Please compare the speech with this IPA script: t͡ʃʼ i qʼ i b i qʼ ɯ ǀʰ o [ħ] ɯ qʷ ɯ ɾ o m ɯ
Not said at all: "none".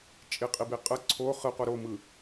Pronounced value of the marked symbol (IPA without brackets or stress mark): χ